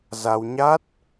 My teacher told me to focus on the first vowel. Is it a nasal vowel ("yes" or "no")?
no